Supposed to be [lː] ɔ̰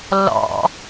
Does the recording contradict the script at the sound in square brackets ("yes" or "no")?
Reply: no